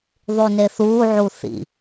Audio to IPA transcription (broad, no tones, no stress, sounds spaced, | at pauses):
ðˤ y n e θ uː ʕ u θ ḭ